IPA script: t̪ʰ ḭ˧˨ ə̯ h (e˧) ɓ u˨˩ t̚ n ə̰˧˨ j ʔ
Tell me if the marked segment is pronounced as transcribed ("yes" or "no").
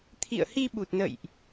no